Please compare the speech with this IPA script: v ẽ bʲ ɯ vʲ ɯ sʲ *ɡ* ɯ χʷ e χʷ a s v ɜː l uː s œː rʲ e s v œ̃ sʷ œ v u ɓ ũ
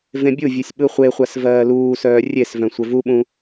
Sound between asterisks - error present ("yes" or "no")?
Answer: yes